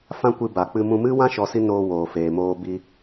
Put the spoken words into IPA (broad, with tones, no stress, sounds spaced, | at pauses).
f ã˦ kʷ ɨ˧ b a˨ k͡p ɨ˧ m ũ˧ m ɨ˦ w ã˦ ʃ ɔ˧ s i˦ n oː˧ w oː˨ f eː˨ m oː˧ b i˧